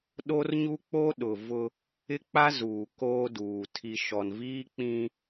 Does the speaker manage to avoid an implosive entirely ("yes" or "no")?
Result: no